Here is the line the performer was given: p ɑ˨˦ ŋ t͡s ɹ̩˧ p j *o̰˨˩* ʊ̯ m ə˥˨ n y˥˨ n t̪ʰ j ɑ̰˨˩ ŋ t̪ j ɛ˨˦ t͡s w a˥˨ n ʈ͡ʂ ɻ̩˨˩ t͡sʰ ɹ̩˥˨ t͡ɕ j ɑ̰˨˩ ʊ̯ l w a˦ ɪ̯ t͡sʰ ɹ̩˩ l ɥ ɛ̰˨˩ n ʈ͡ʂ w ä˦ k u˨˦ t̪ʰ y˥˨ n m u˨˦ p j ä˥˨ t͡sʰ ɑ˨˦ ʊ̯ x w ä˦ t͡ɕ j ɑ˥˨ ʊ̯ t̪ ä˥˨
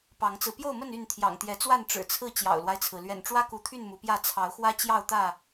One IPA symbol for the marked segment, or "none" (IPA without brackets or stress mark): o˥˨